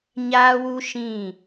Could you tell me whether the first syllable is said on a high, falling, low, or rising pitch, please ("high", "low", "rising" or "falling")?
high